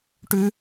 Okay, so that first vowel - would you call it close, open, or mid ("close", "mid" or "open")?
close